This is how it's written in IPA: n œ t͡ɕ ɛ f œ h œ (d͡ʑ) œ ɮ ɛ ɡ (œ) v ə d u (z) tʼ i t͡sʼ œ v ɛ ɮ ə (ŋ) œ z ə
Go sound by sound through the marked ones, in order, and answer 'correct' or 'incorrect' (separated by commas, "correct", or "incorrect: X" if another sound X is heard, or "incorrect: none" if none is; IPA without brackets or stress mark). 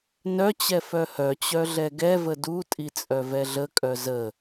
incorrect: t͡ɕ, incorrect: ɛ, incorrect: none, incorrect: kʼ